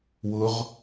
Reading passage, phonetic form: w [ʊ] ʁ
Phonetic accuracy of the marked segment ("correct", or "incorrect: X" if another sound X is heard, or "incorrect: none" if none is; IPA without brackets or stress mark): correct